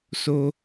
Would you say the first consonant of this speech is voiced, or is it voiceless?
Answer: voiceless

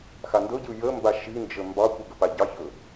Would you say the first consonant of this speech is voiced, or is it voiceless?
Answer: voiceless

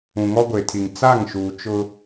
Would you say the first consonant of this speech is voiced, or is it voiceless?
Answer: voiced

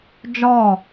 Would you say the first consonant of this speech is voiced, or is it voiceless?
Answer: voiced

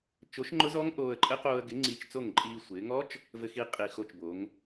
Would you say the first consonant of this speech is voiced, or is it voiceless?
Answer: voiceless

